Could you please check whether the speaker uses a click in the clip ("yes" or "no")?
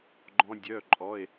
yes